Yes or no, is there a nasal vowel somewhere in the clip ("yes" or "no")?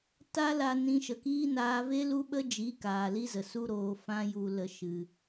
yes